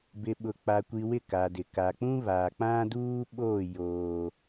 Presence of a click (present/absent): absent